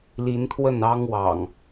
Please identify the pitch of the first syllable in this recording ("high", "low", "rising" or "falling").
rising